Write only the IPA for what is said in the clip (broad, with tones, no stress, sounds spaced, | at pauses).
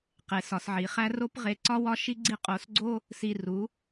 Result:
q e˨ s ɒ˨ s ʕ i˨ χ æ˦ r o˦ p ʁ e˧ ǀ ɒ˦ w ɒ˦ ʃ i˦ ɡ͡ǀ i˦ qʼ o˧ s ɡ͡ǀ o˦ | s i˧ r u˨˦